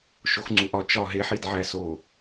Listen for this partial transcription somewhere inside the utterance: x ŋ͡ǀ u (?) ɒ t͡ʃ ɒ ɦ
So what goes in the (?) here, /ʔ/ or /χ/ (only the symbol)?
ʔ